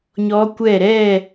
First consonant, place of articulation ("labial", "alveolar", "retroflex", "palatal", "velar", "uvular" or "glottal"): palatal